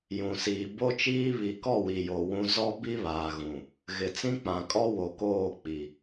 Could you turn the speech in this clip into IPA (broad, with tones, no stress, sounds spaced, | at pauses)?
j ũ˨ s iː˨ b o˦ t͡ʃ iː˦ β i˨ k ɔ˦˨ w i˨ j o˨ w ũ˦ z ɔ˦ b i˦ β aː˨ ɣ ũ˨ | ɣ ɪ˨ t͡s ĩ˦ k͡p ã˨ kʼ ɔ˦ w o˨ k oː˦˨ k͡p i˨